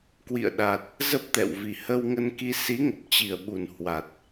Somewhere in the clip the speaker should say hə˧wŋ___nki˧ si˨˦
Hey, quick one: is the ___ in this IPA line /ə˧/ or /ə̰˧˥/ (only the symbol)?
ə˧